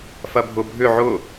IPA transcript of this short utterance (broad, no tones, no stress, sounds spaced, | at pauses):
f ɐ bʱ ʊ bʱ ʏ ʕ ʊ